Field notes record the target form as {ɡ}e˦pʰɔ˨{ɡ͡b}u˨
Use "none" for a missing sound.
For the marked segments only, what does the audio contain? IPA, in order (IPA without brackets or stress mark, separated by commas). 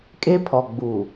kʼ, ɡ͡b